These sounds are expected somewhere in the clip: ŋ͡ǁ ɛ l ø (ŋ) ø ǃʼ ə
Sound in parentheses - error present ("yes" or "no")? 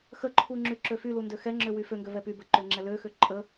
yes